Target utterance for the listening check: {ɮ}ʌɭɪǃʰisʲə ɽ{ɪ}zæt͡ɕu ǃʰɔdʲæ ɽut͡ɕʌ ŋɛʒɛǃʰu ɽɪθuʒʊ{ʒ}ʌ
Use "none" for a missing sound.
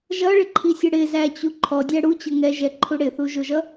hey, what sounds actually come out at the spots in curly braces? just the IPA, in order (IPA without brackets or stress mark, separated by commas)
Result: ʒ, ɪ, ʒ